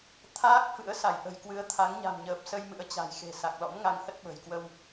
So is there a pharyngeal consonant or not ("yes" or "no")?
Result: no